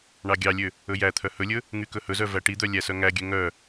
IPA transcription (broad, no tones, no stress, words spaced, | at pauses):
ɳɑɡʲɑlʲø | ɵjæt̪ʰœ hɵlʲɵ | ŋykɵhɵzœ væʈid̪œ lʲæsœŋæɡʲø ŋœ